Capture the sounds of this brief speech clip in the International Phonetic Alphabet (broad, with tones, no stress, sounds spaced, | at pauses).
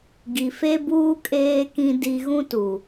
ɡ i˨ f e˦ b uː˦ kʼ eː˦ k ĩ˦ d i˦ ɣ ũ˦ t u˨